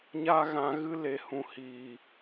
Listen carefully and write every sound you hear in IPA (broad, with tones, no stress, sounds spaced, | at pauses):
ɲ a˦ ɣ ã˧ ɣ ɨ˦ l e˨ h ũ˨ h iː˨